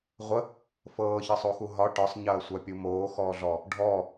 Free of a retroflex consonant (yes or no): no